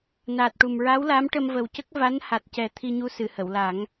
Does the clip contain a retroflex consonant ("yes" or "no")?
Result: yes